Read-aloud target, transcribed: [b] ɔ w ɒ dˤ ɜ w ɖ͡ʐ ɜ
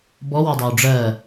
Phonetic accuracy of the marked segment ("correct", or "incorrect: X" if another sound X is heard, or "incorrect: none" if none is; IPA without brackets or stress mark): correct